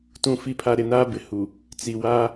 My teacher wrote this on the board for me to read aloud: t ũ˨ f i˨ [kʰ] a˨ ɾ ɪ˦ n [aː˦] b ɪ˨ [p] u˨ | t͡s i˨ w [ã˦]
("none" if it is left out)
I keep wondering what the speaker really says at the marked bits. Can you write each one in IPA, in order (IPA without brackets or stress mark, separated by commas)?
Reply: pʰ, aː˦, h, a˦